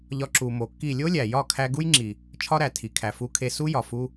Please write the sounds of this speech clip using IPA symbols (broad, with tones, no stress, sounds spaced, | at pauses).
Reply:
ʎ ɒ˧ ǁ u˨ m o˨ kː i˦˨ lʲ o˦ lʲ æ˨ j ɒ˦˨ kʰ æ˧ ɡ u˦ j ŋ͡ǁ i˨ | t͡ʃʰ ɒ˦ ɾ æ˨ tʰ i˨ kʰ æ˨ f u˧ kʰ e˧ s u˦ j ɒ˨ f u˦